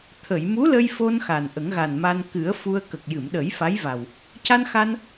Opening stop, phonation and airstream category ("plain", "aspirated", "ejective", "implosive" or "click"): aspirated